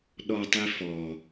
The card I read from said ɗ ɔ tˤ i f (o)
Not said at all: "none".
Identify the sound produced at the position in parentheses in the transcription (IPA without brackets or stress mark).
ɔ